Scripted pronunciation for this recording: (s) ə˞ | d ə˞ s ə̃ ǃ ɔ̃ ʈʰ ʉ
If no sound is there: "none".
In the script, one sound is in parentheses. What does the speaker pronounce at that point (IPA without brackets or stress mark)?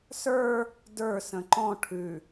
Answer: s